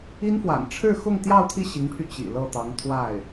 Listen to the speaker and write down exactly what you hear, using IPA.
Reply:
i˥nfwa̰˨˩n ʈ͡ʂʰɻ̩˥˧xʊ˥˧ŋ t̪jɑ˥˧ʊ̯t̪ʰi˥˩ ɕi˧˥ŋpʰy˧ t͡ɕḭ˨˩ lɤ˥˩t̪ɑ˧˥ŋ t̪ʰwa˥˩ɪ̯

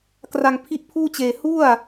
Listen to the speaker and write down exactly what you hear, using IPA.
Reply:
kra˧ŋpʰi˦˥ʔ pʰuː˥˩t͡ɕeː˧ hu˥˩a̯

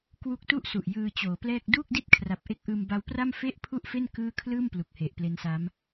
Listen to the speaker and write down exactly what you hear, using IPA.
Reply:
kwu˦˥k̚tu˥˩ʔsu˨˩ʔ jɯː˧t͡ɕoː˩˦plɛː˥˩k̚ duː˥˩k̚di˥˩t̚kʰra˨˩p̚ʔe˦˥k̚ ʔɯː˧mba˦˥wpra˥˩m fe˥˩ʔpʰu˥˩ʔfe˥˩n kɯː˥˩ kʰlɯː˥˩mplu˨˩k̚ he˨˩ʔple˦˥nsa˦˥m

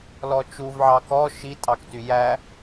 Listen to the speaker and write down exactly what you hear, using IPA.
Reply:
lɔt͡ʃuv ʕɑkɔ ʃitʼɑkty jæ

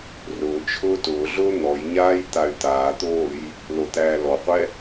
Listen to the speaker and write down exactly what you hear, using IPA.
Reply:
rʊː t͡ʃʰʊːtʊːɮʊː n̪ɔjɲaːj t̪ay̯t̪aːt̪oːj | lot̪æːlɔqʷɛ

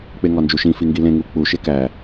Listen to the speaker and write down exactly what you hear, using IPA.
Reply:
k͡peŋɒnd͡ʒuʃĩ fiŋɡilẽ ŋuk͡pu ʃekæ

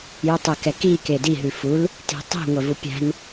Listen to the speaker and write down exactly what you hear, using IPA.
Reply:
jutˤɛkɛki kedi ɦʉful | ti̤tˤi̤ ŋʷɛvupʲæ̤n

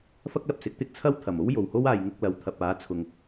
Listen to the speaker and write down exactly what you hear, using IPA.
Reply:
fɐ˥k̚lɐ˨p̚sɪ˨˥k̚t̪ɪ˥k̚ t͡sʰɐ˥wt̪ʰɐ˨˩mo˥w jo˨˩who˥waː˨jŋʊ˧k̚ lɐ˨wt̪ʰɐ˨p̚aː˨˥t͡sʰʊ˨ŋ

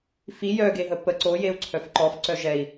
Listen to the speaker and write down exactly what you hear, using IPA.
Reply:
fi jœɡeɦə pə ǀojeu̯ǀʰœf ǃɔfǀœ ʒɛi̯

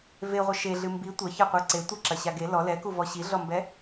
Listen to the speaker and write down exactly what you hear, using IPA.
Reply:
veʁʷɐ ʃeɮɨ mbi tʷɐçɐqʷe ǀe tʷɐǁɐɕa ɡe lɔ lɛkuvɔ ɕiɮɔmbɛ

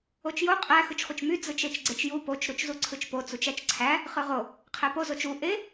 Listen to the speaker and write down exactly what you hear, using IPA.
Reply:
ot͡ʃjo qʼæ xɯt͡ʃχʷɯt͡ʃmy d͡zɯt͡ʃet͡ʃɡ͡ǀet͡ʃju pot͡ʃ ɾut͡ʃzuǀʰɯt͡ʃpo t͡sut͡ʃæt͡ʃǀʰæ | χɯʁo | qʰæpo zot͡ʃu ʔe

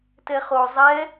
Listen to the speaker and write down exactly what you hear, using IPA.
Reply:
tɛχo zˤɛ

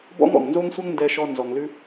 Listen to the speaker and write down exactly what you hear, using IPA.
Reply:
bɔ̰˥ŋɔ̰˩ŋnzo˥ŋsʷɛ˥ŋ ndɛ˧ʃɔ˧ nzɔ˩ŋlʉ˧

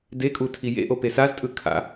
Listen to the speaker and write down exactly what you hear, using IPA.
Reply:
dekʼu tʰijḛʔo pesaztʼɯ kʰa̰

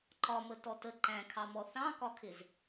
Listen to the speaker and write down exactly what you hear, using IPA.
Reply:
ǃɒmə tɔtə ǃæ̃kʰɑmɔ θɑ̃kɒkʰɪz

